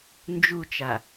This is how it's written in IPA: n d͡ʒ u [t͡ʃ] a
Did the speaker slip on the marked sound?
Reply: no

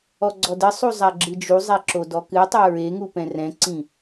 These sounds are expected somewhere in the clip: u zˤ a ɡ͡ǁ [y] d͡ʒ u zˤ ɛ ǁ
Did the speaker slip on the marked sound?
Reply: yes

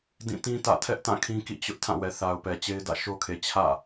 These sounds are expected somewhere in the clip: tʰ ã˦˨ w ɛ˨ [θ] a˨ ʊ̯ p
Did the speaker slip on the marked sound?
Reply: no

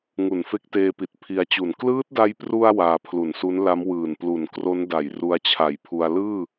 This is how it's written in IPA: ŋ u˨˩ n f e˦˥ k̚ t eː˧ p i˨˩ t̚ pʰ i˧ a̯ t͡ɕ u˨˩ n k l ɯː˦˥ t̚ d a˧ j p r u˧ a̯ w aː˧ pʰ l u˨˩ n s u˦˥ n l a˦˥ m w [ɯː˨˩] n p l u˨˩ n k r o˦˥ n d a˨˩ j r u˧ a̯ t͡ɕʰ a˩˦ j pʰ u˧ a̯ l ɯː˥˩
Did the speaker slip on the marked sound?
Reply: no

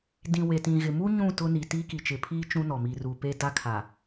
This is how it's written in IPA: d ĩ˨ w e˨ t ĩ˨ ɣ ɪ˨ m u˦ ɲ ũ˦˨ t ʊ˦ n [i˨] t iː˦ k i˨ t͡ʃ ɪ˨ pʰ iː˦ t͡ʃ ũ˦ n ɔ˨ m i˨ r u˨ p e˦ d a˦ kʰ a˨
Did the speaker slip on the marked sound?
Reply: no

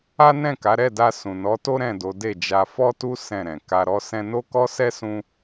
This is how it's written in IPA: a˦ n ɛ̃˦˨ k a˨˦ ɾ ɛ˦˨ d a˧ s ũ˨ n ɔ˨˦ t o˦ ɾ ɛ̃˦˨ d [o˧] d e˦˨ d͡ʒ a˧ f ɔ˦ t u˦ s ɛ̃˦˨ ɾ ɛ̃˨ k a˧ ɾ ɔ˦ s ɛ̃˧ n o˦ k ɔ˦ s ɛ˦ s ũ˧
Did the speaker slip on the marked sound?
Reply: yes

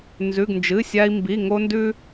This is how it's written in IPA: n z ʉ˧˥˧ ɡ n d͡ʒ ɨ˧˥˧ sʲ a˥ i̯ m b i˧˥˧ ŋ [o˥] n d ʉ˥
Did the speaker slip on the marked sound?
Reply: no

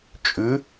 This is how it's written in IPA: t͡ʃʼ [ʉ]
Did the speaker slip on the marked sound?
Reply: no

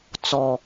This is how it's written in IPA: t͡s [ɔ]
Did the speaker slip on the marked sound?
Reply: no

